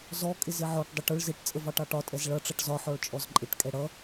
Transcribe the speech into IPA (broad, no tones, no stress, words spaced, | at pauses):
zɔ kʼɪzɪʕɔʈ dˤəʈʊɭ zɪʈ t͡sʼəvɑʈɑʈɒ tʼɛzɭʌ ʈ͡ʂʌʈzɒ ħɔɭt͡ʃʼɔzǃʼɪʈ kʼɛɽʌ